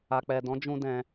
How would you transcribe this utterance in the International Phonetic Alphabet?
a˨ k͡p ɛ˨ d ɔ̃˨˦ d͡ʒ ũ˦ d ɛ̃˧

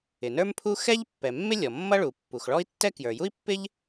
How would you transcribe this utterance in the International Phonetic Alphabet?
ɪ˩ n ə˞˥ m pʰ u˥ x ɛ˥ ʎ pː ɛ˩ mː ɪ˥ lʲ ɔ˩ mː ʌ˥ ɭ u˩ pː u˩ x ɭ ɔ˥ i̯ tː ɛ˥ k j ə˞˩ j u˥ i̯ pː ɪ˥ ʎ

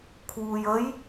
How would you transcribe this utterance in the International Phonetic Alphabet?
kʰ w uː j ə j

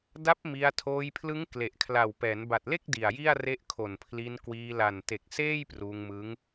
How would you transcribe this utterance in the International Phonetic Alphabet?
d a˦˥ p̚ m i˧ a̯ tʰ oː˧ j pʰ l ɯ˦˥ ŋ k l e˨˩ ʔ kʰ l a˨˩ w p ɛː˩˦ n b a˨˩ t̚ l e˥˩ k̚ d i˨˩ a̯ j i˥˩ a̯ r e˦˥ ʔ kʰ o˨˩ n pʰ l i˧ n k w iː˧ l a˨˩ n t e˨˩ k̚ s eː˥˩ j p r uː˧ ŋ m ɯ˦˥ ŋ

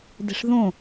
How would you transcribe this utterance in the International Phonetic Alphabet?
d e̤ ʂ ð õ

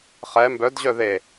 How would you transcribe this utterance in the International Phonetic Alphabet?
χ ɛ m b œ d ʑ œ ð e

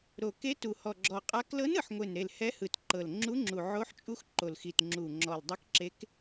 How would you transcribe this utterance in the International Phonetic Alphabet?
ɾ o˨˩ k e˧˥ t u˨˩ h ɔ˨˩ ɡ͡ǁ ɔ˨˩ qʼ a˧˥ k l ɤ˧˥ n ɯ˨˩ ħ ŋʷ e˨˩ n ɾ e˨˩ l h ɛ˧˥ h ɯ˨˩ t ǃ ɤ˨˩ l ŋ͡ǁ u˧˥ ŋ͡ǁ u˨˩ ʕ o˧˥ ħ t͡ʃʼ u˧˥ x ǃ o˨˩ l x i˨˩ t ŋ͡ǁ u˨˩ ŋ͡ǁ ɔ˨˩ l dˤ i˧˥ k ǁ e˧˥ k

